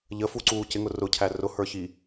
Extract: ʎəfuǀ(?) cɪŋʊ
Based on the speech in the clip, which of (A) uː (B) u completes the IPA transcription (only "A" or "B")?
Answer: A